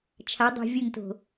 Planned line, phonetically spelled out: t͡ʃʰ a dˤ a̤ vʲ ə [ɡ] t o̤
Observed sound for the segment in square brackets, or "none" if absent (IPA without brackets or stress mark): ŋ